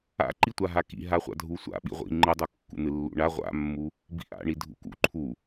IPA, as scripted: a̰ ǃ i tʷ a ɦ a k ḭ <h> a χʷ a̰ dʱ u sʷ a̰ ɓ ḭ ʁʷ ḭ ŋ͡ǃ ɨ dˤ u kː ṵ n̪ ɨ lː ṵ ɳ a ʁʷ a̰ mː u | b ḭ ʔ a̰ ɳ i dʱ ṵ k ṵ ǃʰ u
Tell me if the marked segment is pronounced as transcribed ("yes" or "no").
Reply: no